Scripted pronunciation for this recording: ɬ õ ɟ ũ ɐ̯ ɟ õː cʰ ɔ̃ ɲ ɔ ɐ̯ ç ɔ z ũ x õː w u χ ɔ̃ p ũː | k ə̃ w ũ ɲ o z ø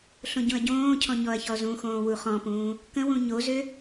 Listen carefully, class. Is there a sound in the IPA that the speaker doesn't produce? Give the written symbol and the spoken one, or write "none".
none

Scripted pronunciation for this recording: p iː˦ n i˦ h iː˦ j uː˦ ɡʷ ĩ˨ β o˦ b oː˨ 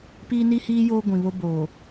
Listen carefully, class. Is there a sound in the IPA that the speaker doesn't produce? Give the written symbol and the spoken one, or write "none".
uː˦ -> oː˦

